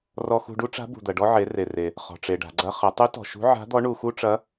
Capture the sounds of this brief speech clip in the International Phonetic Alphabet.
r ɔ˧ x ṳ˧ ɖ u˥ ʈ͡ʂ a̤˧˥ b ṳ˩ d̪ ɐ˩ ɖ ɔ˧ ʕ e˩˧ r e˩ r e˩ | χ ɔ̤˩ ʈ͡ʂ e˩ ɖ a̤˩ ɡ͡ǀ ɐ˧ χ ɐ˩˧ tˤ u˧˥ t ɔ̤˩ ʃ ṳ˧˥ ʕ a̤˧˥ d̪ ɔ˧˥ ɳ u˧ x u˥ ʈ͡ʂ ɐ˧˥

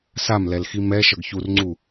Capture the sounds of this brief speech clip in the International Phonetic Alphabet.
s a m l ɛ l x i m ɛ ʃ ʌ ɡ ç u r ŋ͡ǀ u

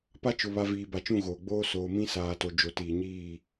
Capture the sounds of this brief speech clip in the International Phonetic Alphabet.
p a˦ t͡ʃ ʊ˨ β a˨ v iː˨ b a˨ t͡ʃ ũ˦˨ ɣ oː˨ ɡ͡b oː˦ s oː˨ m ĩ˦ s aː˨ t o˨ d͡ʒ o˨ t iː˨ ɲ iː˦˨

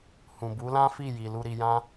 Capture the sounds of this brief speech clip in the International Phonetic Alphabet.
h ũ˨ b u˨˦ l ã˦ f i˦˨ j i˨ l u˧ ɾ i˧ j ã˦

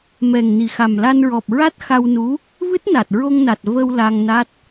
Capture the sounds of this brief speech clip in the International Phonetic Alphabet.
m ɛ˨˩ ŋ n i˨˩ x a˨˩ m l a˧ n ɹ ɔ˨˩ p̚ ɹ a˦˥ t̚ x a˧ w n u˧˥ | v ɨ˦˥ t̚ n a˨˩ t̚ ɹ o˧ ŋ n a˨˩ t̚ v ə˧ w l a˧ ŋ n a˦˥ t̚

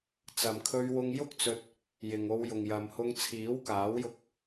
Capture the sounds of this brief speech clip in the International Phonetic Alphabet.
t͡s ɐ˨ m kʰ ɵ˧ ɥ w ʊ˧ ŋ j ʊ˥ k̚ t͡s ɵ˧ t̚ | j ɪ˨ ŋ o˧ w j ʊ˨ ŋ j ɐ˨ m h ʊ˧ ŋ t͡sʰ iː˨˥ w k aː˨˥ w j ʊ˧ k̚

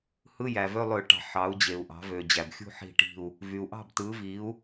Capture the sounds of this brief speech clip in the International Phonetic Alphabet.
h ɯ˧˥˧ j æ˩ v ø˧˥˧ lˠ ø˧˩˧ ʈ ɑ̤˩ ħ ɑ˩˧ u̯ d͡ʑ e˩ u̯ ʔ ɑ̤˩˧ v ø˩ d͡ʑ æ˩ b xʲ ṳ˦˨ ħ i̤˦˨ ʈ i̤˦˨ u̯ | v y˩ u̯ ʔ ɑ̤˦˨ b t ɯ˩˧ v i˩˧ u̯

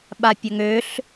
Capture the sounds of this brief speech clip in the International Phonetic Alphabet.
ɓ a pʲ ɐ ŋ ø ɬ

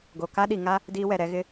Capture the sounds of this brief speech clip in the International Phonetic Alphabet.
ɡ o˨ k a˦ ɗ i˨ ŋ a˦ | d iː˦ w ɛ˨ ɾ ɛ˨˦ ɣ ɪ˦

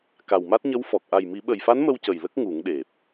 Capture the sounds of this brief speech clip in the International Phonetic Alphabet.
k a˨˩ w m a˦˥ t̚ ɲ ə˧˥ w f ɔ˨˩ k̚ ʔ a˨˩ j m i˨˩˦ ɓ ə˨˩ j f a˧˥ n m ə˧ w c ə˨˩ j l ə˦˥ k̚ ŋ u˨˩˦ ŋ ɗ e˨˩ p̚

